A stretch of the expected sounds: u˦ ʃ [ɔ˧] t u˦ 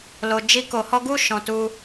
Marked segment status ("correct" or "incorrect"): incorrect